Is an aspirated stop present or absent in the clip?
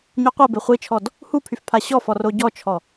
present